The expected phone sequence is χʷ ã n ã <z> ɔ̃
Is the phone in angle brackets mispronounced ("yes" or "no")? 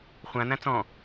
yes